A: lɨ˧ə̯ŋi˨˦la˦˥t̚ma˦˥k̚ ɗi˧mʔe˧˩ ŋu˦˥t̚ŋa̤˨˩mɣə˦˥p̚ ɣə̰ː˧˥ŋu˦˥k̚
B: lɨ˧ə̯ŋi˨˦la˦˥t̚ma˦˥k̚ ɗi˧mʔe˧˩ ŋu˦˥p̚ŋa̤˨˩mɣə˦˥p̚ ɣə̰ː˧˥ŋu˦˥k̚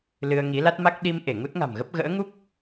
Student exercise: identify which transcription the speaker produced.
A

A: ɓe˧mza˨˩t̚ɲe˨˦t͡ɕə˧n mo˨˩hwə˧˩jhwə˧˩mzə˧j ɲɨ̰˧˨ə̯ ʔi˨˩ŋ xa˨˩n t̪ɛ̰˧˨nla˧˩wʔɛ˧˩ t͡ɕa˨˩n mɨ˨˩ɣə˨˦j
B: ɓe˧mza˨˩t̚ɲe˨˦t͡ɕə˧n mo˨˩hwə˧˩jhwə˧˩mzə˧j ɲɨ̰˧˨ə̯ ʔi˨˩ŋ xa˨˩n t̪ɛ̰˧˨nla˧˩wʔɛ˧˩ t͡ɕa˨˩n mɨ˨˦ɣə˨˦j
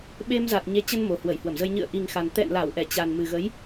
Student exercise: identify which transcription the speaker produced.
A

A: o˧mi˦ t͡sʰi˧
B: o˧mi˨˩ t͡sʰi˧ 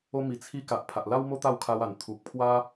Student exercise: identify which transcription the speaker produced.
B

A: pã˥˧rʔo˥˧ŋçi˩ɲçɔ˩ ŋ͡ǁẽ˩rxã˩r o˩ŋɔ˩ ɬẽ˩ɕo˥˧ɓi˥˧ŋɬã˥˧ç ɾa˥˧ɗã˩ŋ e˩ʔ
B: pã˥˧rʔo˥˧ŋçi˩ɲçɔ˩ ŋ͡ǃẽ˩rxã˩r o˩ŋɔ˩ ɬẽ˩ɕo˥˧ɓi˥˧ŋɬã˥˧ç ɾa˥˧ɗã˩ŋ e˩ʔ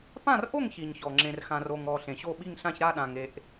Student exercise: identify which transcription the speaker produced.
A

